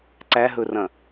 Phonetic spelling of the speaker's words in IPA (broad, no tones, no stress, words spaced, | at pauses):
ǀæɦɵrɐ̃